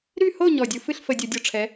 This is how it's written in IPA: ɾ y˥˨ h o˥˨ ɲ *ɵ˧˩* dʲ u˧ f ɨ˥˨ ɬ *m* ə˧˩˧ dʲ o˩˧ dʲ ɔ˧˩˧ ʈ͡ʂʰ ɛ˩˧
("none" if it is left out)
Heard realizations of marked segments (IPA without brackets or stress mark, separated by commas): ɔ˧˩, f